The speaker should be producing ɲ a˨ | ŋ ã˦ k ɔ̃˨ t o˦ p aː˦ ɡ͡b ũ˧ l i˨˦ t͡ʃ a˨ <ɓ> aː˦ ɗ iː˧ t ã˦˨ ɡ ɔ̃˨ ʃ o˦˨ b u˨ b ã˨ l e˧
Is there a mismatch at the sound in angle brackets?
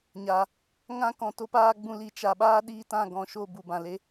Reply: no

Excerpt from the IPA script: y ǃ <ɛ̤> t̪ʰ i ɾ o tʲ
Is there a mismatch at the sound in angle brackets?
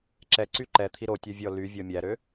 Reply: yes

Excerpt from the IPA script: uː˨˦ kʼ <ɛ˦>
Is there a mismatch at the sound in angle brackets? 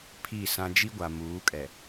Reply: yes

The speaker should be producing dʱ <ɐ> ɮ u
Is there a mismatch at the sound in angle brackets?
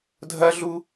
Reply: no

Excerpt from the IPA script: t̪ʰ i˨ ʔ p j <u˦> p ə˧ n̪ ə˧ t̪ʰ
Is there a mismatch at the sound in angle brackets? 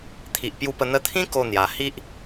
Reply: yes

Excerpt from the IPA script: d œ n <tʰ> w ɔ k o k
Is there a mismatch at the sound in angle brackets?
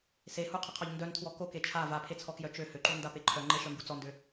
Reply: no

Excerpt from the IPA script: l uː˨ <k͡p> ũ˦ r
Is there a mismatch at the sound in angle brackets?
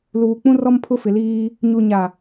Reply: no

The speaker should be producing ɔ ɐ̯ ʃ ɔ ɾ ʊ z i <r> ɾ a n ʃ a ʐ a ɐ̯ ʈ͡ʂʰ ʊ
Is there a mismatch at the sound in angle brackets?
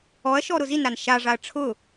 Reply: yes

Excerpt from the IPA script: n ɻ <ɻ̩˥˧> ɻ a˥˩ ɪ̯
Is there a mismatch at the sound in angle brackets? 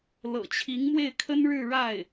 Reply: no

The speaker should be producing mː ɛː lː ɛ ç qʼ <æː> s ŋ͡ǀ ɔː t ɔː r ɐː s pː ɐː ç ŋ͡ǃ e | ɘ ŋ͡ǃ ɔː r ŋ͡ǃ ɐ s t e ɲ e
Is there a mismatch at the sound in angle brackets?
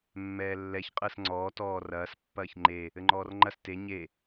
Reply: yes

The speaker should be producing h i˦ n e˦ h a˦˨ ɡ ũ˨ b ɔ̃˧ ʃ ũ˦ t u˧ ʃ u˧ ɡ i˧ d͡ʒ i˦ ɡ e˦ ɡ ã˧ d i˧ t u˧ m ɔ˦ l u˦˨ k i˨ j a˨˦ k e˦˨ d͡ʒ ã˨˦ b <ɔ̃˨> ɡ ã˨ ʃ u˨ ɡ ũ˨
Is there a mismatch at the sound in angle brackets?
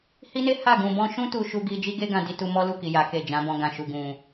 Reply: yes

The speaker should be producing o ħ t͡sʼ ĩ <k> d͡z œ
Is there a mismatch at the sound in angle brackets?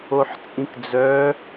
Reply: no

